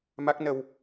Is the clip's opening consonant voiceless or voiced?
voiced